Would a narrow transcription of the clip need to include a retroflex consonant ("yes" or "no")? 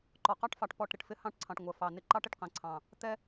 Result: yes